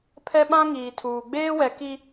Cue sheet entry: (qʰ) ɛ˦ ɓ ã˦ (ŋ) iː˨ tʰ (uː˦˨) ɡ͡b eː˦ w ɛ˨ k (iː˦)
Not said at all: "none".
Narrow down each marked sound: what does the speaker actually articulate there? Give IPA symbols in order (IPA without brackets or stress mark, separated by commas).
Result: pʰ, ŋ, uː˨, i˦